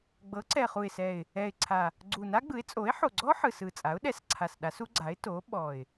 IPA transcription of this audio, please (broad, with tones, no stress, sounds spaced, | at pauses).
ɡ͡b ɤ˩˥ ǀ ɛ˨˩ χ u˨˩ ɪ̯ s ɛ˨˩ ɪ̯ | ɛ˨˩ ɪ̯ ǀʰ a˨˩ | ɡ͡ǀ u˨˩ n a˦˥ ɡ͡b ɯ˩˥ ɪ̯ t͡sʼ o˩˥ ɪ̯ ħ o˨˩ ɡ͡ǀ ɔ˦˥ ħ ɯ˨˩ s ɯ˨˩ t͡sʼ a˩˥ ʊ̯ ɗ ɛ˩˥ s ǀʰ a˨˩ s ɗ a˩˥ s u˦˥ ɡ͡ǀ a˩˥ ɪ̯ t o˩˥ ɓ ɔ˨˩ ɪ̯